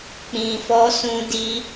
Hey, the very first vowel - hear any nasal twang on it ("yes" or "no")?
yes